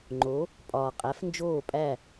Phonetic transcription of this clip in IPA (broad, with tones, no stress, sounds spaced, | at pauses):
ŋ͡ǃ o˩˥ | pʼ ɒː˩ qʼ æ˩˥ f n d͡ʒ oː˥˩ pʼ æ˥˩